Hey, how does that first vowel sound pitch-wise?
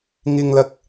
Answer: low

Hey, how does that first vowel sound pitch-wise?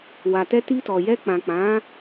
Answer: low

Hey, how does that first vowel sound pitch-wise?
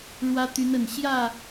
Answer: high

